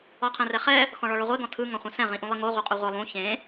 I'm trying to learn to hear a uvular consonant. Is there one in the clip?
yes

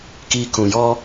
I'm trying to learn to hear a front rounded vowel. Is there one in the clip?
no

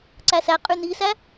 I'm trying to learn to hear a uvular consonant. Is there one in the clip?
yes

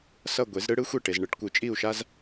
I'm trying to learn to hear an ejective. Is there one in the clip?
yes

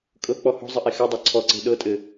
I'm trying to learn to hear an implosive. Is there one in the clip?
yes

